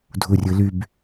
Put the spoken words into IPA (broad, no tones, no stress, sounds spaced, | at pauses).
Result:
dʱ u rʲ ɯ l y b